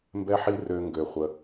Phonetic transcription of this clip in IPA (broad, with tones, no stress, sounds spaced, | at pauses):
m b ɛ˧ ħ i˧ r ø˧ ŋ ɡ ø˨ χʷ ə˧